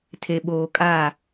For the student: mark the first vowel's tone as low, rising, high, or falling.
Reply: low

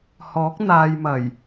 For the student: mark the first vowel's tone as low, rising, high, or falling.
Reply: rising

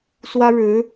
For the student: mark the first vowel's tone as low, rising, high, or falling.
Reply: high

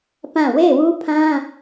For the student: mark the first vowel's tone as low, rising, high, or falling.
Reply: falling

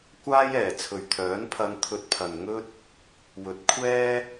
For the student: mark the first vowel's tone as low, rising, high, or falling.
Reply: high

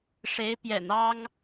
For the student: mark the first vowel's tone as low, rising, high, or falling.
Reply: rising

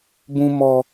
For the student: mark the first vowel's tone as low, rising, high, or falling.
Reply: high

